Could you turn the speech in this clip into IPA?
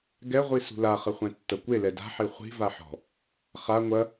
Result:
ɡ ɛ ʁʷ i s ṳ l a χ ɐ χʷ ɛ̃ tː ɐ kʷ e l ɛ d a̤ ħ e χʷ i̤ v a ħ ɔ̤ | χ a ŋʷ ɐ

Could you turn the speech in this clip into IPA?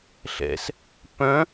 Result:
ɬ ɛ̰ s | p œ̃

